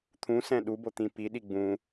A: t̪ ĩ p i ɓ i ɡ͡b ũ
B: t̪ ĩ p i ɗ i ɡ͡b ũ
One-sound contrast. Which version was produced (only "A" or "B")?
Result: B